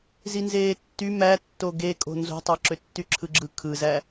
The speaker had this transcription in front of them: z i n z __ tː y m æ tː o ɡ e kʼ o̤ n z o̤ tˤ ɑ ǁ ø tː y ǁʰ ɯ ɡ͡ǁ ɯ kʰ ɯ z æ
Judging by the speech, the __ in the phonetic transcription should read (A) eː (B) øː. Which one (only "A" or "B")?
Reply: A